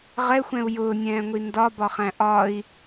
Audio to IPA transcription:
ʁ ɛ xʷ ɛ̃ u̯ j ʊː nʲ ɛ̃ː ŋʷ i n d ɒ b ɒ χ æ̃ ʔ ɒ i̯

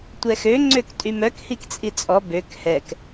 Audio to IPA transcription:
tʷ ɛ x ø ŋ͡ǀ ø k tʼ y m œ k h i k t͡sʼ i t͡sʼ ɔ b ø k h ɛ k

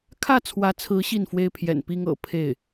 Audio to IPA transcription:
kʰ ä˥˩ t͡sʰ w ä˧˥ t͡sʰ ɹ̩˧˥ ɕ i˥˩ n f w e˥ ɪ̯ pʰ j ɛ̰˨˩ n p i˥ ŋ ɤ̰˨˩ pʰ e˥˩ ɪ̯

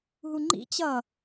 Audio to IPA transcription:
ɦ u ŋ͡ǃ ḭ t͡ɕ ʌ

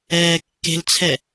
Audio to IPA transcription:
ɛː kː e̤ l t͡sʰ ɛ

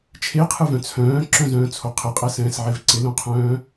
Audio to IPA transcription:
t͡ʃʰ e qʰ ɯ v œ̃ t͡sʰ œ̃ː ǁ œ̃ z œ̃ː t͡sʰ o qʰ ɪ qʼ ɛ s ɛ̃ː s ʕ e v ǀ ɪ l õ qʰ œ̃ː

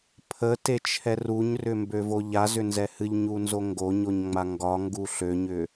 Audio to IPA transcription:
pʰ ə t e t͡ʃʰ ɛ r u ɲ r ʏ m b ø v o ʎ a z ʏ n z ɛ h ɨ ʎ ɲ u n z o ŋ ɡ o ɲ o ɲ ŋ͡m a ŋ ɡ ɒ ŋ ɡ u ɬ ø ɲ ʏ

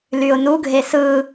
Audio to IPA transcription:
l y ʊ̯ n u ɡʱ e s ɯ

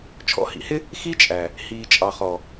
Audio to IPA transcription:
t͡ʃʰ ɔ̰˨˦ h ḭ˨ h ɪ˦ | x i˦ t͡ʃʼ æ˨ | h iː˨ t͡ʃʼ ɑ˨ χ ɔ˨

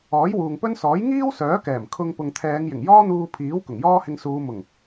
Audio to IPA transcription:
ɔː˨˥ j w uː˨ ŋ p ɵ˥ n s ɔː˨˥ j ŋ iː˥ w s œː˨˥ k ɛː˨˩ m kʰ ʊ˧ ŋ p ʊ˨ ŋ t̪ʰ ɛː˨˧ ŋ j ɪ˨˩ ŋ j ɔː˥ n̪ uː˧ pʰ iː˨˥ w k ʊ˨˩ ŋ j ɔː˥ h ɪ˧ ŋ s uː˨˧ m ʊ˨˩ ŋ

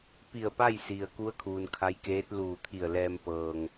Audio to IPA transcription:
p i˧˩ ə̯ p a˥˨ j s i˩ ə̯ k u˧˥ ə̯ kʰ uː˩ n kʰ a˧˥ j k eː˧˥ t̚ l uː˧˩ t̪ʰ i˧˩ ə̯ l ɛː˧ m p ɤː˧ ŋ

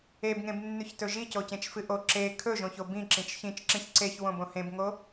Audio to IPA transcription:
e b ŋ ẽ b nː ʉ ç t ɵ ʒ i c o c ẽ t͡ʃ f ɨ ʔ o ǁ e kʰ ɵ ʒ õ ç o b ĩ ǁ ĩ t͡ʃ ç ĩ t͡ʃ ǁ ĩ ç ǀ e ç w õ b õ h ẽ b ŋ o

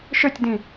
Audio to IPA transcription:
ʃ ø tʲ d ĩ

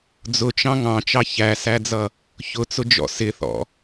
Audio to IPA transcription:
d͡z ʊ t͡ʃ ɑ̃ ŋ ɑ̃ t͡ʃ ɑ ç æ s æ d͡z ʌ | ç ʊ t͡s ʊ d͡ʒ ɔ̰ s ɪ θ ɔ̰

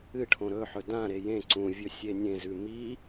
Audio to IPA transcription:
ɨ ʈʰ õ ɾ ɵ ħ ɵ d ã ɾ e j ẽ ǀ ũ vʲ ɵ sʲ e nʲ ẽ z ʉ m i

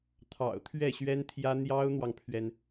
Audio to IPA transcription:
t̪ʰ ɑ̰˨˩ ʊ̯ t̪ʰ ɥ ɛ˥˩ ɕ ɥ ɛ˥ n t̪ʰ j ä˥ n̪ j ɑ˥ ʊ̯ n̪ w ɑ˨ ŋ pʰ ɥ ɛ˩ n

